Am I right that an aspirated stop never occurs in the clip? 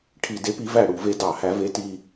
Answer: no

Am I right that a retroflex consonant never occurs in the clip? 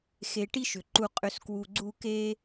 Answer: no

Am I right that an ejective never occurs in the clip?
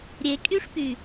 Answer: no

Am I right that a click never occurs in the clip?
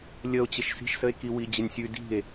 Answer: yes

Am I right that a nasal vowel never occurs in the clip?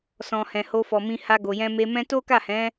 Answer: no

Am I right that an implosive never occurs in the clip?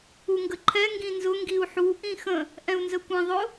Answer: yes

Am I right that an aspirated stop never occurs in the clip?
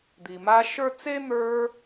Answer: yes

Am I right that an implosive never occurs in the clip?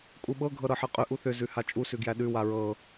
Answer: no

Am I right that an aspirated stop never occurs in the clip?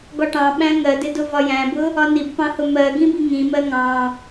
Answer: yes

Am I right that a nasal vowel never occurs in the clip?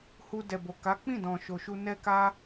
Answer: no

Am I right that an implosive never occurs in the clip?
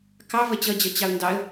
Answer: yes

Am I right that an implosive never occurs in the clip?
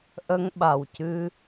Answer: no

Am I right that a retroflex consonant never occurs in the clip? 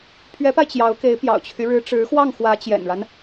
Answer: no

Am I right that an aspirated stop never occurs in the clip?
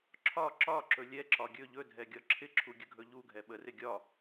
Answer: no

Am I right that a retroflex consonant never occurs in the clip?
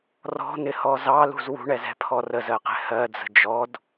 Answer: no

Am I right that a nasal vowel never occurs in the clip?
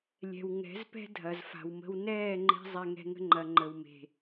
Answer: yes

